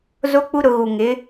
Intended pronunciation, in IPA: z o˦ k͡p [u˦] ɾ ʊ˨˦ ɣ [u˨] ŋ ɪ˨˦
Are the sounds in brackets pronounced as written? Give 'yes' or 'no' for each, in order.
yes, yes

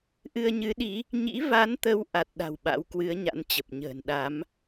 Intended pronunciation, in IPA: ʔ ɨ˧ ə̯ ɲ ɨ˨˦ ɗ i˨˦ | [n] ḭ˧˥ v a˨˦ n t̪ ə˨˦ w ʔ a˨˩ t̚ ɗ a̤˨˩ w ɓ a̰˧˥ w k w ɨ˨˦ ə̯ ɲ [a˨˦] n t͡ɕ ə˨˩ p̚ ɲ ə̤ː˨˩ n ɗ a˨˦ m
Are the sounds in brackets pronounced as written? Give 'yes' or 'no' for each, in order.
no, no

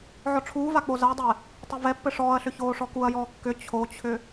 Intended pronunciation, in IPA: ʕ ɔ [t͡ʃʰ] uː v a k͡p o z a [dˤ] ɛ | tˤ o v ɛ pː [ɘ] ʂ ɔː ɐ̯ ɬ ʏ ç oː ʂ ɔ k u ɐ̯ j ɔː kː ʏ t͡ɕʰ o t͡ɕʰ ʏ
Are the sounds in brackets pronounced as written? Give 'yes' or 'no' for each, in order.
no, yes, yes

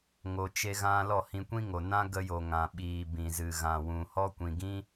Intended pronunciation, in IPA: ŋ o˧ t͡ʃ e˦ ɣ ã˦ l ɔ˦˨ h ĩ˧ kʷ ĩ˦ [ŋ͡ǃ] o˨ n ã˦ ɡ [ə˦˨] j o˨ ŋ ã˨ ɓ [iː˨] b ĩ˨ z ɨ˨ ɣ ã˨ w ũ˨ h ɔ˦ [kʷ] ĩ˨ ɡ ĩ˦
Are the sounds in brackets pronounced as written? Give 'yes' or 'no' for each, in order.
no, no, yes, yes

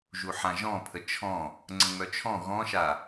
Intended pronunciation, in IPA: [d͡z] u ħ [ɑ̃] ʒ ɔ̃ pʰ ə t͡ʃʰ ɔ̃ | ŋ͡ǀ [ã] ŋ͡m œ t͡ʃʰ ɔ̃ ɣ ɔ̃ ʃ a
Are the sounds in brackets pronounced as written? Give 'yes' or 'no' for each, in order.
no, no, no

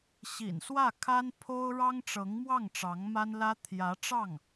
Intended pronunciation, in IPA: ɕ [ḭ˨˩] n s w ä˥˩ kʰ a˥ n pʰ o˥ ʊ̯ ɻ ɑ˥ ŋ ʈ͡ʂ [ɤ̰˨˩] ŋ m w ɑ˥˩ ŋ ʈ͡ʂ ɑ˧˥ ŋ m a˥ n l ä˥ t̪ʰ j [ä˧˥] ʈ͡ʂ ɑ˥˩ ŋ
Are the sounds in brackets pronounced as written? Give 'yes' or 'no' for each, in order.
yes, no, yes

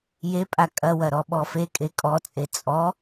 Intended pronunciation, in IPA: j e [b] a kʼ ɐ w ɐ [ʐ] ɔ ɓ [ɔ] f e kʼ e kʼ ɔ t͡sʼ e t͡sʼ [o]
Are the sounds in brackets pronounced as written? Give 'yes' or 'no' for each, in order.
no, no, yes, no

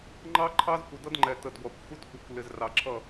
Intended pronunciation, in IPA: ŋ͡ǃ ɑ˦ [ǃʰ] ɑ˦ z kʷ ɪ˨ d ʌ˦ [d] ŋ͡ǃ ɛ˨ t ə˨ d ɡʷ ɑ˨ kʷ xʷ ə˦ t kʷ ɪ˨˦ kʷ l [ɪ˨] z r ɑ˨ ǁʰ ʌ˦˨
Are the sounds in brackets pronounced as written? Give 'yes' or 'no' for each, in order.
yes, yes, yes

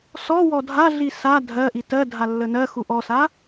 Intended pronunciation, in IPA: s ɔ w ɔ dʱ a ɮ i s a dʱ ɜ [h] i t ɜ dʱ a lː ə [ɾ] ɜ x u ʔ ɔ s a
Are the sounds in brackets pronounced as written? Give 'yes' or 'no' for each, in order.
no, no

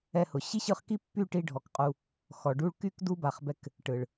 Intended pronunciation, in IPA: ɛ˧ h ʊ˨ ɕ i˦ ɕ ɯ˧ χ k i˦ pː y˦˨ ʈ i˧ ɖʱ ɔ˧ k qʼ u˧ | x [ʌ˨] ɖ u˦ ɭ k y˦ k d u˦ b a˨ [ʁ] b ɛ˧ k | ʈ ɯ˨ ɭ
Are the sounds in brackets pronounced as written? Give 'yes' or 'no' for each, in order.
no, no

